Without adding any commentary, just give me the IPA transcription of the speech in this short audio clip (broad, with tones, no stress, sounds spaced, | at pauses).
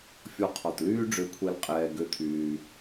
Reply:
fʲ ɔ˧ qʰ ɔ˩ t l yː˥ ɖ͡ʐ ø˧ kʷʰ ɛ˧ l qʼ ɛː˧ ɡ ø˥ t̪ʰ yː˧